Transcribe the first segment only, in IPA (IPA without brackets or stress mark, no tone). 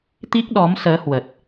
t̪